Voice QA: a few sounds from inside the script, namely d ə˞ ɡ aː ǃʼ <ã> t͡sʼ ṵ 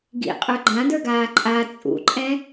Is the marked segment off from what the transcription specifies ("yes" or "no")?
yes